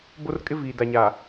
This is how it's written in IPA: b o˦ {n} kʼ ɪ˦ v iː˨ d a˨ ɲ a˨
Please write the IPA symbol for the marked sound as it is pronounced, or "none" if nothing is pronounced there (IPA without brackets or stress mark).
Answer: r